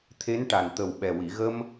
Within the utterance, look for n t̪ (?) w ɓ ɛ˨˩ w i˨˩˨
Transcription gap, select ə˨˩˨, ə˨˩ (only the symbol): ə˨˩